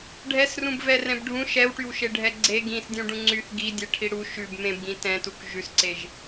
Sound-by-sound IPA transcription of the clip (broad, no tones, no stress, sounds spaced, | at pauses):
ɖʱ ɛ s r ũ b v ɛ r ɛ̃ b ɖʱ ũ ʃ ɛ w ʈ y w ʃ e ɖʱ ɛ ɡ͡ǀ e ɡ ĩ s dʲ ũ ɖ ũ ŋ͡ǀ y θ ɡ i dʲ ɛ ʈʰ i ɽ u ʃ ʉ b m ẽ b ɡ ĩ t ɛ̃ t u k ʒ ʉ s ǀ e ʒ